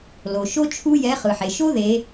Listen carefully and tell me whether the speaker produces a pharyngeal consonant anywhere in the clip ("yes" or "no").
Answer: yes